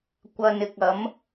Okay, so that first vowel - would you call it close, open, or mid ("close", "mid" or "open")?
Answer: open